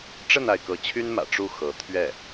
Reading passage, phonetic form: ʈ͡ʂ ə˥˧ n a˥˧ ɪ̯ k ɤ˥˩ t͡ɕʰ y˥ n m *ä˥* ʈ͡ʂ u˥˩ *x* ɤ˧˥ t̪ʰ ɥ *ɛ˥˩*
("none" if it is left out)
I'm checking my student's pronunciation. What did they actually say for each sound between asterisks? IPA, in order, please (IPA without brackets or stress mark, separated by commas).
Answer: ä̰˨˩, x, ɛ˥˩